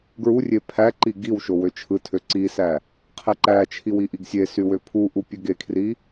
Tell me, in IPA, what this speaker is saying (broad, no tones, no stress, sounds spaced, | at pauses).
ɡ ɹ u rʲ e pʰ æ ǃ i ɡ i w ʃ o w ø t͡ʃʰ ɯ tʰ ø ǀ i s æ | qʰ e ǃ æ t͡ʃʰ i w i ʔ i ɡ sʲ e s y w ø pʰ u ʔ u pʲ ø ɡ e kʰ r i